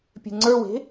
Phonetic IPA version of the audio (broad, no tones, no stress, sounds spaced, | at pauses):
pʲ e̤ ŋ͡ǀ ə˞ w e̤